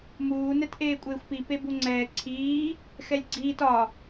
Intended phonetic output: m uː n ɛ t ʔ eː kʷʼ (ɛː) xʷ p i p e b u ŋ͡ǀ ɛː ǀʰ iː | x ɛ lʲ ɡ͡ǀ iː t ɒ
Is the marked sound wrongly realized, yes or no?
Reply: yes